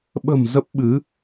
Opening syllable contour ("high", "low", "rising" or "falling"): low